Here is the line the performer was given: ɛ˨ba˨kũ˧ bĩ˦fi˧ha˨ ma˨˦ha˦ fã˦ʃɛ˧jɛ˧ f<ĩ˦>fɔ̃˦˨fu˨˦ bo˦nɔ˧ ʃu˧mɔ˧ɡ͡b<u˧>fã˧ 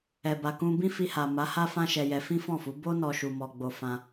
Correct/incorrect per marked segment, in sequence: correct, incorrect

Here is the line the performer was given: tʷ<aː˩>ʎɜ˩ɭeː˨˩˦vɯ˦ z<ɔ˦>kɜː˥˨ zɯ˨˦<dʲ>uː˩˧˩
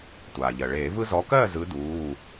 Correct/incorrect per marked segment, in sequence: correct, incorrect, incorrect

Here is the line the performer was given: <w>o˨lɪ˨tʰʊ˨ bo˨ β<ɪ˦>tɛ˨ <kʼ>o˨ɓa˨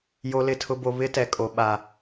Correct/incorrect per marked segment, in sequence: incorrect, correct, correct

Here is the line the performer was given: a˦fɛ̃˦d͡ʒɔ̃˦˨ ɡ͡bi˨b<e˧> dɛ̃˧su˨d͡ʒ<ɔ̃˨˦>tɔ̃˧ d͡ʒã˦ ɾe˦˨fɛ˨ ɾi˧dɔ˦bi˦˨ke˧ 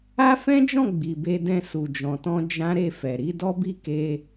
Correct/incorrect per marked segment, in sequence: correct, incorrect

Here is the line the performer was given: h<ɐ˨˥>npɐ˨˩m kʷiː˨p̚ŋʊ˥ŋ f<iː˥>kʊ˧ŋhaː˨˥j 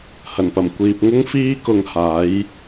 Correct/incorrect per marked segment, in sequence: incorrect, correct

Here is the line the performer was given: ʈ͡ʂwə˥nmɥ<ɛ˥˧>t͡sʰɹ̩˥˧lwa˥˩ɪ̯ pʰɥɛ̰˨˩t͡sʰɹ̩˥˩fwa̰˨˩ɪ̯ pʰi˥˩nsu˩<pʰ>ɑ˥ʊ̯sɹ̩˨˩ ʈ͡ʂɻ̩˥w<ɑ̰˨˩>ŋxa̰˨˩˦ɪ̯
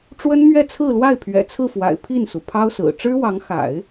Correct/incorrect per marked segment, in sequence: correct, correct, incorrect

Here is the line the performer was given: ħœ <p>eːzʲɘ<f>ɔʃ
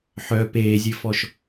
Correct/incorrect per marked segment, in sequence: correct, correct

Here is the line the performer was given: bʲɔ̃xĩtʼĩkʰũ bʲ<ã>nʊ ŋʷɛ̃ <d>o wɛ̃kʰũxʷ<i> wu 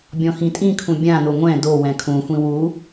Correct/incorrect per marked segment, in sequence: correct, correct, incorrect

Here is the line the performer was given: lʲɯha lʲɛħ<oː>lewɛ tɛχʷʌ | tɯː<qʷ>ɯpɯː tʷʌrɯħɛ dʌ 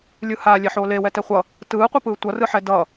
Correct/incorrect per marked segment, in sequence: correct, correct

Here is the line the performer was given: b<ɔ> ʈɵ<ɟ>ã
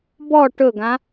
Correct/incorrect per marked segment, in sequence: correct, incorrect

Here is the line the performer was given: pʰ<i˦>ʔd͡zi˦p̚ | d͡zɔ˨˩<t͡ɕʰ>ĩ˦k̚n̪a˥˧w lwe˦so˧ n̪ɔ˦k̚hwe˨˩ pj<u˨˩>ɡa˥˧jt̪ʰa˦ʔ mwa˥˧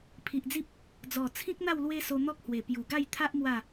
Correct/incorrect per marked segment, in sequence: incorrect, incorrect, correct

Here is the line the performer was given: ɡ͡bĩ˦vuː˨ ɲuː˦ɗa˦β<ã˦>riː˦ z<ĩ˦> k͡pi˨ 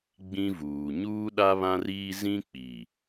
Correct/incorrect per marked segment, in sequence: correct, correct

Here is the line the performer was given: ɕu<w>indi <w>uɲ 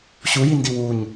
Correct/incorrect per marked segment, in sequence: incorrect, correct

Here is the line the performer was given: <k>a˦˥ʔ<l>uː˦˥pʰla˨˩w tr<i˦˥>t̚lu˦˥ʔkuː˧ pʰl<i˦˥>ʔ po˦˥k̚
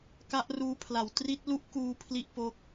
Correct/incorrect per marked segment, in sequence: correct, incorrect, correct, incorrect

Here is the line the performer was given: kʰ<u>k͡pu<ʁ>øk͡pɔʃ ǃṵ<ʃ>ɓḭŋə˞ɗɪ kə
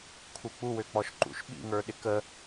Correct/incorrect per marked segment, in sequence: correct, incorrect, correct

